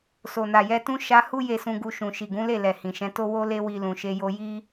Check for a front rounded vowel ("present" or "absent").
absent